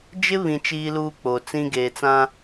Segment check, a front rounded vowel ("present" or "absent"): absent